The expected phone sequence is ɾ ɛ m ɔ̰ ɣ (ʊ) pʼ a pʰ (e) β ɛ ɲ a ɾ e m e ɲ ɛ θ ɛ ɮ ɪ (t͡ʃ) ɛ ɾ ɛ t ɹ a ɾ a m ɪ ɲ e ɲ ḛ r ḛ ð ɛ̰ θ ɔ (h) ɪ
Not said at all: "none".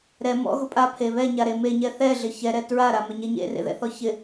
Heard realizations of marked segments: ʊ, e, ç, ç

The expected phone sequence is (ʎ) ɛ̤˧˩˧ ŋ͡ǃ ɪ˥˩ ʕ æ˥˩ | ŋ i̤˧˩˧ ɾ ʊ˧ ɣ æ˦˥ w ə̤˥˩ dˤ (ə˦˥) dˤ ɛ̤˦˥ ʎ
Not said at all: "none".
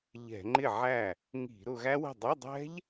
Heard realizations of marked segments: ʎ, ə˧˥˧

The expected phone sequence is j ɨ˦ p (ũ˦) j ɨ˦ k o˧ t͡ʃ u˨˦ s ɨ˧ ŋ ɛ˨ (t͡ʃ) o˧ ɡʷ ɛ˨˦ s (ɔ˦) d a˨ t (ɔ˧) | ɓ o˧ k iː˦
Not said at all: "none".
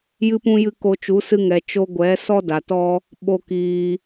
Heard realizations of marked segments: ũ˦, t͡ʃ, ɔ˦, ɔ˦

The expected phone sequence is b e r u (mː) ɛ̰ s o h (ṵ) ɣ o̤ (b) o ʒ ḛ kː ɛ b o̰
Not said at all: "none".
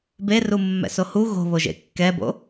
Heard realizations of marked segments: mː, u, β

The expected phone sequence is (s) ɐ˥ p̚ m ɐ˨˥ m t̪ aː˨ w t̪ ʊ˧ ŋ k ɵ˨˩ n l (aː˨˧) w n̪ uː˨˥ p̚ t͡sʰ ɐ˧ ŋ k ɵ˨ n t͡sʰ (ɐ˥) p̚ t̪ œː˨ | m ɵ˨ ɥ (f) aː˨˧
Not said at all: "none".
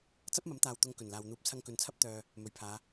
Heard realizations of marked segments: t͡s, aː˨, ɐ˥, pʰ

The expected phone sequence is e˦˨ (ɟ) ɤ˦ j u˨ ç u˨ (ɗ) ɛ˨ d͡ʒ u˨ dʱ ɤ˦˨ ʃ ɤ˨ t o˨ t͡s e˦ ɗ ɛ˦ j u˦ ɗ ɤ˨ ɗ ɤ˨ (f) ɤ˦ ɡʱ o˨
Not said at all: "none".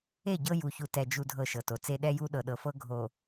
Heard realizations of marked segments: ɟ, t, f

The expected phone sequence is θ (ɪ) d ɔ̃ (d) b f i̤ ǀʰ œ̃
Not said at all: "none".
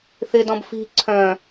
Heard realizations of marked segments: ɪ, none

